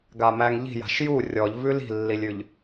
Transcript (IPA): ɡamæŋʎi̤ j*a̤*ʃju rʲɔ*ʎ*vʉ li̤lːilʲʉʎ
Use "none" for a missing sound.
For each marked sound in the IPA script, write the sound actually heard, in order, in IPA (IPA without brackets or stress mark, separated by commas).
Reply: a̤, ʎ